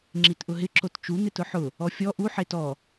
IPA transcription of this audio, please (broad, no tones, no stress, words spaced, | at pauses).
ŋ͡ǁitʔʊɦɪ ǁott͡ʃu n̪ɪtʊħʊ | ɔfʲɔ ʔu ħetɔ